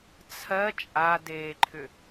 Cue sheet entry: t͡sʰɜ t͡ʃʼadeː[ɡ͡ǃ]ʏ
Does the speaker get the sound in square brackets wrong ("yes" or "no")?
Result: yes